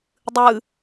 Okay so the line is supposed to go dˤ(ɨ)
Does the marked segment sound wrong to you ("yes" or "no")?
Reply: no